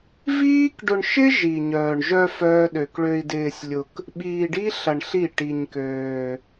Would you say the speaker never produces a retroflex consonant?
no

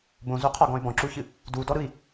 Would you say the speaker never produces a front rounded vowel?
no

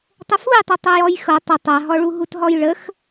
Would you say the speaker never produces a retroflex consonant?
no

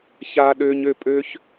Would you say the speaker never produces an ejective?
no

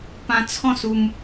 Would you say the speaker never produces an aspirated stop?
no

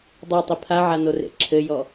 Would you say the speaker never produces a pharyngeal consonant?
no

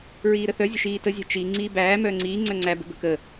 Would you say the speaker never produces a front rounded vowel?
no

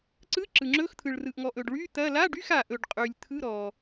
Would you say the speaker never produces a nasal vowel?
yes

